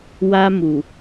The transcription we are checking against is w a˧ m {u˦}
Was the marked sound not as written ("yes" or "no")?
yes